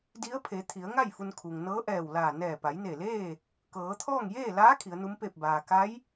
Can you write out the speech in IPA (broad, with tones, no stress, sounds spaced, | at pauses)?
d i˧˥ ə̯ pʰ e˩˧ t̪ʰ i˩˧ ə̯ ŋ a˥˨ j f u˧ n kʰ u˩ ŋ n ɤː˧˥ ʔ ɛː˧˩ w l aː˧˩ n ɛː˧˩ p a˩˧ j n e˧˩ l eː˥˨ | k ɤː˩˧ t̪ʰ ɔː˥˨ ŋ j eː˥˨ l aː˧˥ kʰ i˩˧ ə̯ n u˧˥ m p eː˥˨ p̚ b aː˩ k a˧˥ j